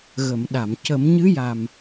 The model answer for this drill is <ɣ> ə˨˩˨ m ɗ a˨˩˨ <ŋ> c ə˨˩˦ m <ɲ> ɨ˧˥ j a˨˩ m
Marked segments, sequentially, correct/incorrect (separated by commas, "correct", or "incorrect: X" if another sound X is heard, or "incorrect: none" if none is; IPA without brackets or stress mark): correct, incorrect: m, correct